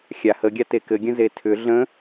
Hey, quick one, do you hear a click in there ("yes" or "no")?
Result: no